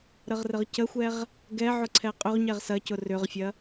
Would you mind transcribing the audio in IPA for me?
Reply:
ɾ ə ʁ r ə ʁ c ə xʷ ɛ ʁ | ɡ ɛ ʕ ʊ ǀʰ ɛ qʼ ʏ ʁ ɲ ɛ ʁ s ɐ c ʊ r ʏ ʁ fʲ ɐ

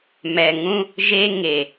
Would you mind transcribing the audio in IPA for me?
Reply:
m ɛ˨ ŋ ũ˦ | ʒ e˦ ŋ e˨

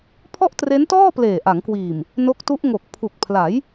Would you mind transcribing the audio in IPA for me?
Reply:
pʰ ɔ˥˩ ʔ t r e˦˥ n t ɔː˥˩ p l eː˨˩ ʔ a˩˦ ŋ k w iː˨˩ m | n o˦˥ k̚ t u˦˥ ʔ ŋ o˨˩ k̚ pʰ u˨˩ k̚ pʰ l a˩˦ j

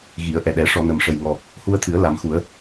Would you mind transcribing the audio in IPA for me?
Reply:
ɣ i˨˩˦ ə̯ ʔ ɛ˨˩ ɗ ɛ˨˩˦ ʂ ɔ˨˩˨ n ə˨˩ m ʂ ə˨˩ j ŋ ɔ˨˩ | h u˧ ə̯ t̪ʰ ɨ˨˩˦ ə̯ l a˨˩˦ m x u˨˩˦ ə̯

